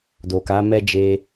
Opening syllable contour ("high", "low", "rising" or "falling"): low